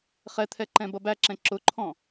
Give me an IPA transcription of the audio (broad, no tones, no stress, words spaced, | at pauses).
χɛt̪ʰɛ ǃɛ̃bʌbæǁɛ̃ ǁʊǃʰɔ̃